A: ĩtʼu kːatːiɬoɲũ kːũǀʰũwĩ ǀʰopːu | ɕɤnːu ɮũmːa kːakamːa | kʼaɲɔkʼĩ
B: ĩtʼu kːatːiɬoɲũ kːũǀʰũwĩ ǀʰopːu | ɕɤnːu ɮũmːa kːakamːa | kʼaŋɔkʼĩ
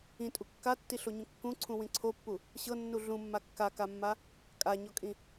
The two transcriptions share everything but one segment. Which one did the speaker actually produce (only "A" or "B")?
A